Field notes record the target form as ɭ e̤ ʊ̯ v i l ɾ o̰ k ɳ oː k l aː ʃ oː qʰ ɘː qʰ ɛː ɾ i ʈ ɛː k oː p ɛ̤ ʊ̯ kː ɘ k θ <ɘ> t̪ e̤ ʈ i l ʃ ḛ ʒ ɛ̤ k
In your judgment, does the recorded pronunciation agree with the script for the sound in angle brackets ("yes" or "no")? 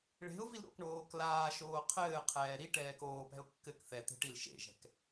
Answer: no